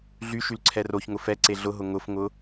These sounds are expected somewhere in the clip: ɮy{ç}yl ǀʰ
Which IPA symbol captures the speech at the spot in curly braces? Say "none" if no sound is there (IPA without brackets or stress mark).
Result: ʃ